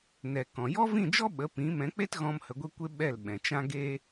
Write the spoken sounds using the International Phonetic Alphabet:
n ɛ˨ k ɔ̃˨ j ɔ˦ v ĩ˦˨ d͡ʒ ɔ˦ ɓ ə˨˦ p ĩ˨˦ m ɛ̃˨˦ k͡p e˦ t ɣ ɔ̃˧ m h ə˧ ɡʷ e˦ kʷ e˦ ɓ ɛ˦˨ l ɓ ɛ̃˨ t͡ʃ ã˦ ɡ e˦

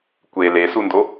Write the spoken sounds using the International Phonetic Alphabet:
kʷ e l e s u n d o

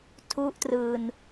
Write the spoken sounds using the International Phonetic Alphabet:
tʰ u˥˩ ʔ t r ɯː˧ n

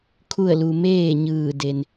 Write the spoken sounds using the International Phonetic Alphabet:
kʰ u˥˨ ə̯ l u˧ m eː˥˨ ɲ ɯː˧˩ d e˩ n

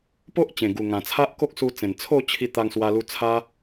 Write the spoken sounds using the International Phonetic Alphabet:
p o˦ ʔ t͡ɕ ẽ˨˩ ɡ u˨˩ ŋ ã˨˩ t͡sʰ a˦ ʔ k o˦ k̚ s u˧ t͡s ẽ˨˩ n t͡sʰ o˥˧ t͡ɕʰ i˧ t̪ a˧ ŋ s w a˧ l u˧ t͡sʰ a˧

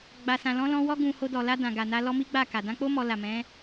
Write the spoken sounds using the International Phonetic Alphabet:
ɡ͡b a˨ s ã˨ l ɔ̃˨˦ l ɔ̃˧ w ɔ˧ ɡ ũ˨ h o˧ d ɔ˨ l a˧ d ã˨ ɡ a˨ n a˧ l ɔ˦ m i˦ ɡ͡b a˦˨ k a˨ d ã˧ k͡p o˦ m ɔ˧ l a˨ m ɛ̃˨˦

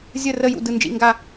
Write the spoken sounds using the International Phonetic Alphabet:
zʲ ə˦˨ r ə˦˨ j ṵ˦˨ d ɯ˦˨ n d͡ʒ ḭ˦˨ ŋ ɡ a˦˨

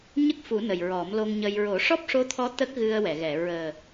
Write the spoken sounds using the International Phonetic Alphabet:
ɲ ə˦˥ k̚ f u˨˩˦ n ə˨˩ j ɹ ɔ˨˩˦ m l o˧ ŋ ɲ ə˧ j ɹ o˨˩˦ ʂ ɔ˦˥ p̚ ʂ o˧˥ t̪ʰ ɔ˧˥ t̪ ə˦˥ k̚ ɣ ɨ˧ ə̯ w ɛ˨˩˨ ɣ ɛ˨˩˨ ɹ əː˨˩

